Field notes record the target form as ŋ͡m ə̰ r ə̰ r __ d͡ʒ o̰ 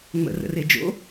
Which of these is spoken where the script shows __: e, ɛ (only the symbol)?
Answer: e